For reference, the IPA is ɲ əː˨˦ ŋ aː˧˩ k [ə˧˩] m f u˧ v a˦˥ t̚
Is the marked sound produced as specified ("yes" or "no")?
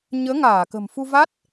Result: no